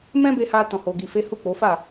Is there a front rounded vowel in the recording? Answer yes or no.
no